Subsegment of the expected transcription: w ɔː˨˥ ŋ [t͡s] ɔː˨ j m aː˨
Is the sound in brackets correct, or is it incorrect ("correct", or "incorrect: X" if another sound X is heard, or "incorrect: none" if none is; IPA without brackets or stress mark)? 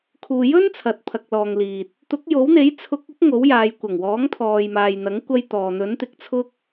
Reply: incorrect: t̪ʰ